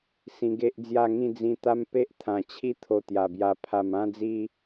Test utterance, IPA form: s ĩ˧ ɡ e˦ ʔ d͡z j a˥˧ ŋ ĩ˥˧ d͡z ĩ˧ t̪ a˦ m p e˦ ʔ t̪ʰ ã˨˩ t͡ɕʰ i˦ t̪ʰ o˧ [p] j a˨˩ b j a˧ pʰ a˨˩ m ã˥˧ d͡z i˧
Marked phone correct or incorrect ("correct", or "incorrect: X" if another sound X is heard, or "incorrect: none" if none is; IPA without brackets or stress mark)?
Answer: incorrect: t̪